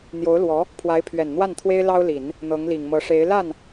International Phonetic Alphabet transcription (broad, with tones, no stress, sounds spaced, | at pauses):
n̪ j o˧˥ ʊ̯ l w ɔ˧˥ | pʰ w a˧˥ ɪ̯ pʰ ɥ ɛ˨˩ n n̪ w a˥˩ n t̪ʰ w e˥ ɪ̯ l ɑ˥ ʊ̯ l i˨˩˦ n | n̪ ɤ˧˥ ŋ l i˨˩ ŋ m ɤ˧˥ ʂ e˧˥ ɪ̯ l a˥˩ n